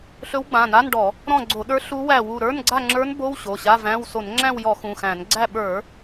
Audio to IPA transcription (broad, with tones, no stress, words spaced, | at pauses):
ɬɵ˧˥wɡ͡bã˩˧˩na˧˥˧nɖɔ˧˩˧ | ɾɔ̃˦˨ɡ͡ǀo˧˩˧ɗə˞˧˥ ɬu˧˥wæ˦˨wu˦˨ ɾə˞˧˥˧n ɡ͡ǀa˦˨ŋ͡ǁə˞˧˥n bo˧˥˧w ɕo˩˧˩ɕa˧˥˧væ̃˧˥˧w so˧˩˧nŋ͡ǁæ̃˦˨wjɔ˧˩˧ xũ˩˧˩xæ̃˧˩˧n ɡ͡ǀæ˦˨ɓə˞˧˩˧